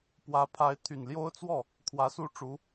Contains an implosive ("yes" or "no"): no